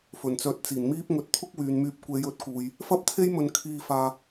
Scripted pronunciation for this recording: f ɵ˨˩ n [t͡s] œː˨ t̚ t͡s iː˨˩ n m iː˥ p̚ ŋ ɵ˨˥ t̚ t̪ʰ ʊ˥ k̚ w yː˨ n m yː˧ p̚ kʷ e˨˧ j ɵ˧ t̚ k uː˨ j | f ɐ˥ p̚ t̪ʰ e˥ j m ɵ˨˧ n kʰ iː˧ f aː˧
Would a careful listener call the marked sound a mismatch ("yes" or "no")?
no